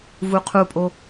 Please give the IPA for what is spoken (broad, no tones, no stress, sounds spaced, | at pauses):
v u qʰ u pʼ o